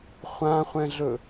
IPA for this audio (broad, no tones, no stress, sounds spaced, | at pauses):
χʷ ã χʷ ɛ̃ ɮ ɵ